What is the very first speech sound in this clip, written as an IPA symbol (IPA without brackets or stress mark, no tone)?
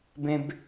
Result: b